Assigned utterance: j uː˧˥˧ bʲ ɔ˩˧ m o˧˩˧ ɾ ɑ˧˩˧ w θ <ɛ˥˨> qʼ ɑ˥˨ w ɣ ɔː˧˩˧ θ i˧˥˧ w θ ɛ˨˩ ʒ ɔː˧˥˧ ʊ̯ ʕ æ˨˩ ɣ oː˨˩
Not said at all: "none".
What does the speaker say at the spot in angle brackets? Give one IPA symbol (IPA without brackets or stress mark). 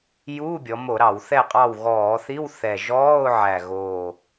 ɛ˥˨